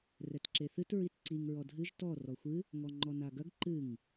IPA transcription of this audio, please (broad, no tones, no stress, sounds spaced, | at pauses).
r ɛ t ǁ e θ ɨ t ɹ i t ǀ i ŋ ɹ ɔ dʱ ɨ ʒ t ɔ r ɔ xʷ ɨ | ŋ ɔ ŋ͡ǃ ɔ n a ɡ ɐ ɡ ǃ ɨ ŋ